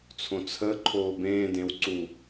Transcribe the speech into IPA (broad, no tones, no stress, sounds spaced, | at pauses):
t͡sʰ õ t͡sʰ ə ǃʰ oː b ẽː d ẽ w ǀ u